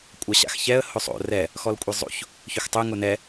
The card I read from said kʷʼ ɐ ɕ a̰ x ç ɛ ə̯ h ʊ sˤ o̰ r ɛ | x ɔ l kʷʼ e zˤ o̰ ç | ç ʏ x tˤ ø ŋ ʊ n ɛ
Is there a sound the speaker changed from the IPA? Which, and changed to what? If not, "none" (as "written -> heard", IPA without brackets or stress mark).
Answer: none